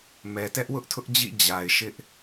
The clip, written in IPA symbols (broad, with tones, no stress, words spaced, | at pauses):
mɛ˨tɛ˦ʔ wʊ˦ʔtʰʊ˦ʔd͡ʑḭ˦˨ d͡ʑa˨ɪ̯ ʃɪ˦ʔ